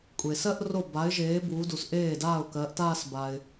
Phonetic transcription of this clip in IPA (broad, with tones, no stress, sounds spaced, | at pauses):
kʷʼ e˨ s ɜ˥˧ ʔ r o˥˩ b a˨˥ ɪ̯ ʒ eː˨˥ b uː˨˥ d u˨ s ʔ eː˥˩ d aː˥˩ ʊ̯ k ɜ˨˥ ʔ t aː˥˧ s b a˨ ɪ̯